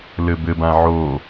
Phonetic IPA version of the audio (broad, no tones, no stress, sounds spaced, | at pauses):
l ɘ b ɘ b ã ʕ o